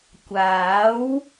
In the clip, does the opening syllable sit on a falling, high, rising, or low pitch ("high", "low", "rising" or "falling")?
rising